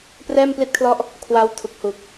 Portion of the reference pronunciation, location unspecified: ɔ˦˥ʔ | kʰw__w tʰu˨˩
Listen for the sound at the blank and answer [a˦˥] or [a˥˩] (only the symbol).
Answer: a˦˥